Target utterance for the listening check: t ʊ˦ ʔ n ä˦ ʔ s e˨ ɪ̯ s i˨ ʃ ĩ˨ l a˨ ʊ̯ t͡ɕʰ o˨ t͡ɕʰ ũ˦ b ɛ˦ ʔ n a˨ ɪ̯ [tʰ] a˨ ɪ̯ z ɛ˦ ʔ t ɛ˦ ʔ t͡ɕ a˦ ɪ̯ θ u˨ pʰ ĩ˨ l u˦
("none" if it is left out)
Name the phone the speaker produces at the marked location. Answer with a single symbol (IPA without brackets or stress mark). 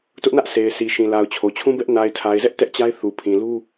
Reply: tʰ